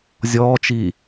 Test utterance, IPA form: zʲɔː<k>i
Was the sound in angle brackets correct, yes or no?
no